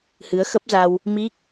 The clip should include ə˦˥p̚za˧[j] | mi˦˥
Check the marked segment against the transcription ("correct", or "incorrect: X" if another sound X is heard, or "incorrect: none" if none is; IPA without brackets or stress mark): incorrect: w